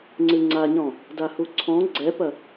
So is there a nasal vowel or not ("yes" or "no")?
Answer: yes